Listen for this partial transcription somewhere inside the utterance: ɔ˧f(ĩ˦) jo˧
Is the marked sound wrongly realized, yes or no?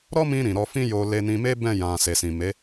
no